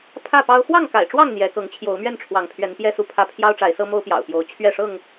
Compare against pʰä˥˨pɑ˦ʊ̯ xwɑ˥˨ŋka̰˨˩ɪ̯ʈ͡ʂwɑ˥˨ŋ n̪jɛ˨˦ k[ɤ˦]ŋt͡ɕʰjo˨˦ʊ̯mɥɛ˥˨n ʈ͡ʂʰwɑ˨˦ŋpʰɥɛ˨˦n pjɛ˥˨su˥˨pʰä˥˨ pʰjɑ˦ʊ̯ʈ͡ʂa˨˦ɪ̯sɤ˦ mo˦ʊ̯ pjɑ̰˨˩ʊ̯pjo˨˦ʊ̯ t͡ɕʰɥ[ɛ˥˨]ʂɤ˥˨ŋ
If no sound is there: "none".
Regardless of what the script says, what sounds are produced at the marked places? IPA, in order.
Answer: ɤ˨˦, ɛ˥˨

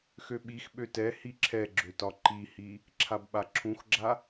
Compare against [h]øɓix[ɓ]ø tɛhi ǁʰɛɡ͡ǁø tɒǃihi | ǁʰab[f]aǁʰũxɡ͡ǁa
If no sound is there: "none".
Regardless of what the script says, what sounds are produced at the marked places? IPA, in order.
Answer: x, ɓ, ɓ

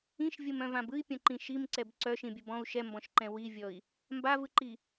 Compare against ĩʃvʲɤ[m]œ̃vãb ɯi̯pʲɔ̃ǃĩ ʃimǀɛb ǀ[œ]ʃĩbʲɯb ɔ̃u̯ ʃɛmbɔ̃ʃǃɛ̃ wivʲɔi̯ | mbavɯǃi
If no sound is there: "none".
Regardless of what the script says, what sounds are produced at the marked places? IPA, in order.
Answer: m, œ

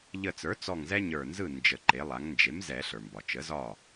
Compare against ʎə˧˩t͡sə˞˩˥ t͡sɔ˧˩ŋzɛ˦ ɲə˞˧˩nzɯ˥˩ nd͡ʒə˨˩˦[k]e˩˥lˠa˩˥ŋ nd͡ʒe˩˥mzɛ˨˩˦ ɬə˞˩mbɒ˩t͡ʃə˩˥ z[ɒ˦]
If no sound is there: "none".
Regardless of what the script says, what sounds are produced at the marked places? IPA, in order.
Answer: ǃ, ɒ˥˩

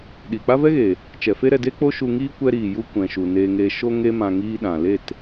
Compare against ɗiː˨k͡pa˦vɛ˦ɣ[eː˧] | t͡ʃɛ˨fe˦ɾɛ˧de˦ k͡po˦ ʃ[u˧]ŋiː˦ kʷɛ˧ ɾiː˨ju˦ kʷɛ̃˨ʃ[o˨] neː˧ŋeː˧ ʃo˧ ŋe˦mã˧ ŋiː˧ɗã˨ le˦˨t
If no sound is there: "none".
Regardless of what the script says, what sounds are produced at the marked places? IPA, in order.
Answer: eː˨, u˧, u˨

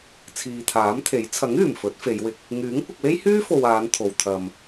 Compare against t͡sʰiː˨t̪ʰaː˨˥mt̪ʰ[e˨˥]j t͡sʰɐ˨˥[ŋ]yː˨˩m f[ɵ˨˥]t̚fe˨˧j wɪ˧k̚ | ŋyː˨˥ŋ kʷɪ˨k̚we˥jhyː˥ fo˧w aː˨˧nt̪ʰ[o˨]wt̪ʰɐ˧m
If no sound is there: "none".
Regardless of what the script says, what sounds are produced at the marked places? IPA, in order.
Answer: e˨˥, ŋ, ɵ˨˥, o˨

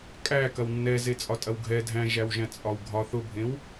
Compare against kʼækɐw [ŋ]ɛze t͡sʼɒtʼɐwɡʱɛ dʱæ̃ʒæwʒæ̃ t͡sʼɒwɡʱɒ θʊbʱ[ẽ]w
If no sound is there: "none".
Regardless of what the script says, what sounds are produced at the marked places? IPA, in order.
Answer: nː, ẽ

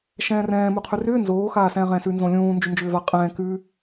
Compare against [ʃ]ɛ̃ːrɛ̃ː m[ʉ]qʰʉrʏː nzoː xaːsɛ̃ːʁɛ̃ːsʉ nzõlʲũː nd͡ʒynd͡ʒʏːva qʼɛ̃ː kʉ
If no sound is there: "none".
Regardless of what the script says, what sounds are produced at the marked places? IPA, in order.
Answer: ʃ, u

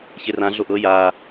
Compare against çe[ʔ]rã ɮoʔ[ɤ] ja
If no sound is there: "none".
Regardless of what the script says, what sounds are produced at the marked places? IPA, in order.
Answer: none, ɤ

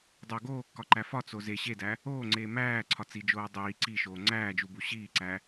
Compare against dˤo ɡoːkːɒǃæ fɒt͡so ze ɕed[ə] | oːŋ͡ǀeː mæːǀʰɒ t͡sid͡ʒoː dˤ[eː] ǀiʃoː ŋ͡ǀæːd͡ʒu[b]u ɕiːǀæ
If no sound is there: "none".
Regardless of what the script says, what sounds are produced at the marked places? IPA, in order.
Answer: æ, iː, b

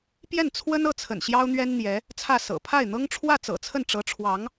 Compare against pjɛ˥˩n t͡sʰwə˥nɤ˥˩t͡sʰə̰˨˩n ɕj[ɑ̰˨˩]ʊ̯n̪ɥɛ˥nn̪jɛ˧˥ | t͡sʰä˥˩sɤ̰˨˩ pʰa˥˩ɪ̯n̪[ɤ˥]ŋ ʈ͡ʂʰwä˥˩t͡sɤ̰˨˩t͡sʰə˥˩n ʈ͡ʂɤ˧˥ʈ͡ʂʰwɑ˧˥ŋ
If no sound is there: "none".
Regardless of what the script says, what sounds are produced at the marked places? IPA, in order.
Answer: ɑ˥, ɤ˥

